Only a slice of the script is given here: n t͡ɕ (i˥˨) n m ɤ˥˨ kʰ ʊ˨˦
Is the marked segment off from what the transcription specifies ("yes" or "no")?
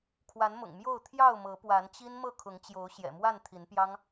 yes